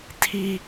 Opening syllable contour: high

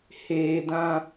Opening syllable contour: low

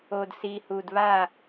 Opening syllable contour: low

